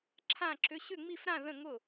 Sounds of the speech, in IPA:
ǁʰ ã˥˨ ǁ ʏ˧˥˧ ɕ ʏ˥˨ ŋ͡m i˥˨ f ɾ ã˥˨ ð ə̃˥˨ ŋ ʊ˥˨

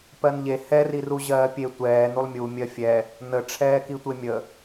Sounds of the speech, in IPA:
p ɜ n ʎ e h ɛ r i r u ʑ ɜː pʲ e tʷ ɛː n u lˠ mʲ u mʲ ɜ fʲ ɛ | n ə ʈ͡ʂʰ ɛː k i tʷ e mʲ ə

